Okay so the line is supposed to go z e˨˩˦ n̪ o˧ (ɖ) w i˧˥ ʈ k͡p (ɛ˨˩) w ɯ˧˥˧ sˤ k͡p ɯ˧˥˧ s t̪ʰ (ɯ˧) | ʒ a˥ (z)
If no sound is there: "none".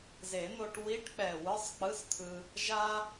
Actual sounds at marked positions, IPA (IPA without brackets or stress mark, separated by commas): ʈ, ɛ˨˩, ɯ˧, none